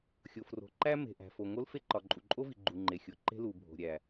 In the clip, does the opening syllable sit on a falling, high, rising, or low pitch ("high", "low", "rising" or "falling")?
low